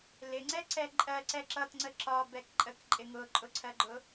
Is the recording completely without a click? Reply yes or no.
no